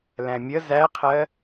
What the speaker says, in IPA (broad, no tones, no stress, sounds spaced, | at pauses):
l æ̃ mʲ ə z æ qʰ ɜ